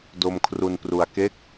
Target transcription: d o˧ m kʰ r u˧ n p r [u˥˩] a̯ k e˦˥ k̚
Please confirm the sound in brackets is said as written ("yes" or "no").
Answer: no